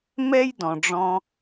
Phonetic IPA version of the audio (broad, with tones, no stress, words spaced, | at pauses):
mɛ˦jdɔ̃˨ɖ͡ʐɔ̃˧